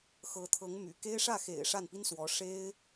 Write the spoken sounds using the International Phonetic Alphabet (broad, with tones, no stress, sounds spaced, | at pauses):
x ɤ˧˥ t̪ʰ ɤ˧˥ ŋ m y̰˨˩ k e˥ ɪ̯ ʂ ä˥˩ x ḛ˨˩ ɪ̯ ʂ a˥˩ n p i˥ n s w ɔ˧˥ ʂ e˥ ɪ̯